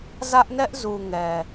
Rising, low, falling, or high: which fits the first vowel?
high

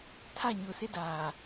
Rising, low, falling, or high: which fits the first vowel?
falling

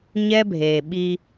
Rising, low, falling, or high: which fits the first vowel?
high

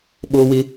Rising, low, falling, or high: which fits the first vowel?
low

